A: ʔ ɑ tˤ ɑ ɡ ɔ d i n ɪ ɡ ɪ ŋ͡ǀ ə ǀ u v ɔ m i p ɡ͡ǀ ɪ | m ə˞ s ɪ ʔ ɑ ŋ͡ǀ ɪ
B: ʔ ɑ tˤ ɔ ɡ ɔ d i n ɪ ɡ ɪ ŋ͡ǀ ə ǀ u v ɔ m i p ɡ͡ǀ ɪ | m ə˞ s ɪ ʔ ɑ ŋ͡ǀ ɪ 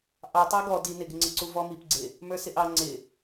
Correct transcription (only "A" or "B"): A